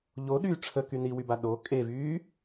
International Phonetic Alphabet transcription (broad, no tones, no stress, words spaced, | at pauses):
ʎoɗyː ʈ͡ʂʰəky niwyba ɗo kʼevyː